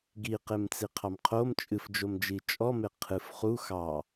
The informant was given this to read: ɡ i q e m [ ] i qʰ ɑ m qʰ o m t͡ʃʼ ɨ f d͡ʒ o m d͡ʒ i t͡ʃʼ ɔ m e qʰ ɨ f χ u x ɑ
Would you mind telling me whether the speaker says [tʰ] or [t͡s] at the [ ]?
t͡s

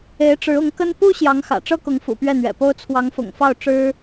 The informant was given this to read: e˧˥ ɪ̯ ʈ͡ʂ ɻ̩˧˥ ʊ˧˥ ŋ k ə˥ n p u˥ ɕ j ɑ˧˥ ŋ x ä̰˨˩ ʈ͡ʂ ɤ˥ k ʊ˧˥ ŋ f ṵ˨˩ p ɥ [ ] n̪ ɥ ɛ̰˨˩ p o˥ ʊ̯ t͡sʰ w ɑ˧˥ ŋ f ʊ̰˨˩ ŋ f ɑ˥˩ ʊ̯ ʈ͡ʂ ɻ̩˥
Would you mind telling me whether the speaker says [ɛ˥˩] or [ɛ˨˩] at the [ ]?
ɛ˥˩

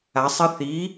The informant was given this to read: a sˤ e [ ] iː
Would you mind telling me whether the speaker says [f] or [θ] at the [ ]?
θ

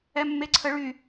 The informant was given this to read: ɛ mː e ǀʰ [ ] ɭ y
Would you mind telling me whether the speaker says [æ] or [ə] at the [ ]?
ə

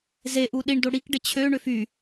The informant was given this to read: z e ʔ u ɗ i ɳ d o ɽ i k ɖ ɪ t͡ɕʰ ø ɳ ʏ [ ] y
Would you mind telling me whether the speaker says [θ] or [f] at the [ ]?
f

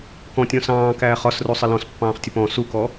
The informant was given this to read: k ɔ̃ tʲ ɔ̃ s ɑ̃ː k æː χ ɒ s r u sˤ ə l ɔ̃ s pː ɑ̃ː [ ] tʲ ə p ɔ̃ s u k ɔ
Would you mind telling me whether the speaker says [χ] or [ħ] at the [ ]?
χ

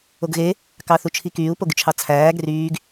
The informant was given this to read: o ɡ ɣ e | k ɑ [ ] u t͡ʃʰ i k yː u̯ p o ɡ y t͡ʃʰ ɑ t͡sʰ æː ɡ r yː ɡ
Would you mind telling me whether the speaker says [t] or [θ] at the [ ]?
θ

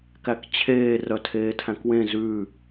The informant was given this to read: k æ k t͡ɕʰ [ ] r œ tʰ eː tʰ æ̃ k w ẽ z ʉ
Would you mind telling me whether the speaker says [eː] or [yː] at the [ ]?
eː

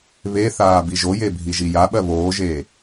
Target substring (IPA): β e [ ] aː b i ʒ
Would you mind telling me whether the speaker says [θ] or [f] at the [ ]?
θ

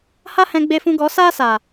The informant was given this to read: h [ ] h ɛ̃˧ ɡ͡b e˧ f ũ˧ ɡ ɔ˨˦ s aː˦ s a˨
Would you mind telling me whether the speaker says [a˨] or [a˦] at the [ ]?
a˦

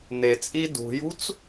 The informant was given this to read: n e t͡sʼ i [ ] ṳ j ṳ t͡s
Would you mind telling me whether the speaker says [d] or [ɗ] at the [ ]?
d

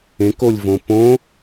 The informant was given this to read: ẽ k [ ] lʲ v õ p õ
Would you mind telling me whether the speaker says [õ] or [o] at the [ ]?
o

